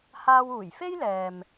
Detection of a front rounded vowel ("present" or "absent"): absent